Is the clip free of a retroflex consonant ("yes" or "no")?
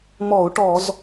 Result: no